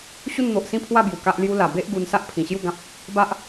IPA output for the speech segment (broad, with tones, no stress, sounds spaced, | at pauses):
ɕ u˥˧ n n̪ o˨ ʔ s ĩ˥˧ pʰ w a˥˧ b j u˨˩ k a˦ ʔ l j u˦ l a˨˩ b e˦ ʔ ɡ u˧ n s a˦ ʔ pʰ ĩ˨˩ ɕ j u˥˧ ɡ ã˦ p̚ | b a˦ ʔ